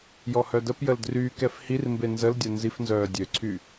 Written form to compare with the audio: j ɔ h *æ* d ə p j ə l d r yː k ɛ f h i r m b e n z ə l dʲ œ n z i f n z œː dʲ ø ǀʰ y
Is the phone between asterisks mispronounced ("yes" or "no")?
yes